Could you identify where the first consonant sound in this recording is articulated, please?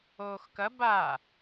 velar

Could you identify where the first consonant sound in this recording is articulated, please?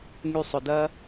velar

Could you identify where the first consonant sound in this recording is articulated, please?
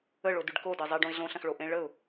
retroflex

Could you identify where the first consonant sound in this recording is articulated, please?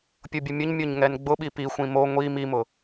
labial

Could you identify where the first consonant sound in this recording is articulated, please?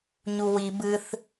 palatal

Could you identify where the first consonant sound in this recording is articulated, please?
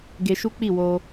velar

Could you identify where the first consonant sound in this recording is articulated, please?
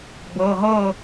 labial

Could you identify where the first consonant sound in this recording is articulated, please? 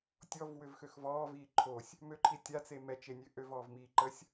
alveolar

